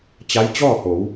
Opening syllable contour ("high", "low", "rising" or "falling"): rising